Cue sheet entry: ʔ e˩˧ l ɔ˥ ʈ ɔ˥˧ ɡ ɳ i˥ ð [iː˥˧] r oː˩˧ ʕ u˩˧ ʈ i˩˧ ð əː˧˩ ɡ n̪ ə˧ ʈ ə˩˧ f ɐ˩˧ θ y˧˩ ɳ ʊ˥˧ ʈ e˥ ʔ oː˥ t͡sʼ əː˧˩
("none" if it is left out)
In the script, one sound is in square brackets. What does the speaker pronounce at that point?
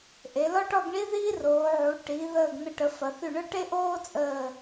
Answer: iː˥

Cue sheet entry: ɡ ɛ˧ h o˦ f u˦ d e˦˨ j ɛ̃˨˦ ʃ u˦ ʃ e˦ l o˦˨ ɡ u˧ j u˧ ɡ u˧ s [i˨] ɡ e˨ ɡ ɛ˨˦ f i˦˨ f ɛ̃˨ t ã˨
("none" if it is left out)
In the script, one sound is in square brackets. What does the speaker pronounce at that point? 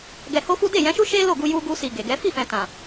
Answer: i˨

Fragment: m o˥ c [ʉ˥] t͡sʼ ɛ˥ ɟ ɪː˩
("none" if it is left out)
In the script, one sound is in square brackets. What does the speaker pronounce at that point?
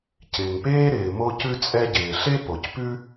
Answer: ʉ˥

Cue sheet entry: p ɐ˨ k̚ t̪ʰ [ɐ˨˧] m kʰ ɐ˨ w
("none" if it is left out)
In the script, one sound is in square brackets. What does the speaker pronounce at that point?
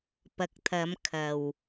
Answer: ɐ˨˧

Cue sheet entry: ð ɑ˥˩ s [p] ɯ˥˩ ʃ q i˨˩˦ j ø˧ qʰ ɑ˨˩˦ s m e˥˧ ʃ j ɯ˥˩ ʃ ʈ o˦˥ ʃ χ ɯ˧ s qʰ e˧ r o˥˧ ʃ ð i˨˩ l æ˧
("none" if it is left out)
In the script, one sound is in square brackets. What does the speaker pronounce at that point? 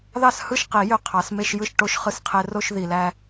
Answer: h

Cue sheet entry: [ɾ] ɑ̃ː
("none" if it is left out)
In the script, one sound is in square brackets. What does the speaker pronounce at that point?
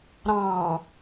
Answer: ɾ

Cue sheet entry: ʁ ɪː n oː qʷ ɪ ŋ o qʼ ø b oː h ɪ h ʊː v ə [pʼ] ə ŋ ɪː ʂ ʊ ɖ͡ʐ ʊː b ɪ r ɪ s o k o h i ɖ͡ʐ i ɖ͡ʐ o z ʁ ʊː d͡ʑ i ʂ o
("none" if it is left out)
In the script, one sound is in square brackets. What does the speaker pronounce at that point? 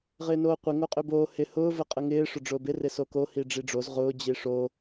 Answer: qʼ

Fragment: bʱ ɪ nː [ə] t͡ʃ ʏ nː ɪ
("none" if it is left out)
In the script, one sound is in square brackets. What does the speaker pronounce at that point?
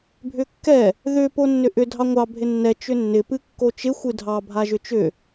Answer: ɛ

